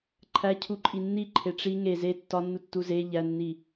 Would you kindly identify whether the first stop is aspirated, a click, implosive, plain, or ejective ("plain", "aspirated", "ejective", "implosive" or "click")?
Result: click